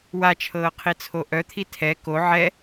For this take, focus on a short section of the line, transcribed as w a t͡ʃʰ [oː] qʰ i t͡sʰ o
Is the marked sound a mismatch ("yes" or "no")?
yes